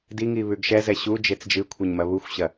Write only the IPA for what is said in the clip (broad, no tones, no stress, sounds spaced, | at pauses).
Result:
d i ŋ i β ʉ ɡ ʃ ɛ z ɛ ɕ u d͡ʒ e t͡s d͡ʒ ɨ kʷʰ ɘ ɲ m ɐ β u xʷ ɕ ɐ